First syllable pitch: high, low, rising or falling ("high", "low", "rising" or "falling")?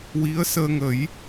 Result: rising